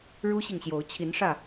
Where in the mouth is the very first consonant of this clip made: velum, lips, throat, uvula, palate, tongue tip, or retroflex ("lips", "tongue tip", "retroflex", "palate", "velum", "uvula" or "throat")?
retroflex